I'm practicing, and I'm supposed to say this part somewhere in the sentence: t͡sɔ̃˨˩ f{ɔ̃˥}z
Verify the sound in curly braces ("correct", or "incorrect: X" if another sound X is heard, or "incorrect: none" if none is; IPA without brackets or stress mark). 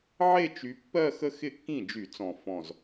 incorrect: ɔ̃˨˩